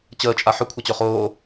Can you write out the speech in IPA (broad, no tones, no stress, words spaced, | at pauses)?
t͡ɕəːt͡ʃʼa ħɵkʷʰat͡ɕɵ χoː